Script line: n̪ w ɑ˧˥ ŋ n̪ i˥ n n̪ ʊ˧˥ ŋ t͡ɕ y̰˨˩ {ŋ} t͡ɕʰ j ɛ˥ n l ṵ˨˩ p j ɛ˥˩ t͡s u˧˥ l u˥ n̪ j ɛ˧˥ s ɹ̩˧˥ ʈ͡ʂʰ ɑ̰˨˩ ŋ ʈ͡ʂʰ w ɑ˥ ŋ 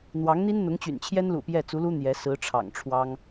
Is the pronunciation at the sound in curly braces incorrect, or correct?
incorrect